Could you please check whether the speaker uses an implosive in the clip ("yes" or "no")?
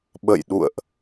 yes